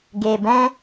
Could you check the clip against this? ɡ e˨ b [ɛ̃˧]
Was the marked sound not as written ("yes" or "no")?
no